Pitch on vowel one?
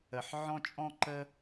low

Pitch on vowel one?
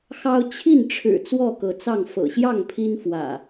high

